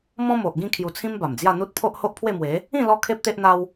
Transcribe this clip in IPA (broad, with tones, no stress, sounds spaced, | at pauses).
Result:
m ɔ̃˦ m o˨ ʔ ɡ ĩ˥˧ kʰ j u˧ t͡sʰ ĩ˦ m b a˨˩ m d͡z j a˥˧ n̪ u˦ t̚ pʰ o˦ ʔ h o˦ ʔ pʰ w e˥˧ m w e˨˦ | ĩ˥˧ l ɔ˦ kʰ e˦ p̚ t̪ e˦ ʔ n̪ a˦ w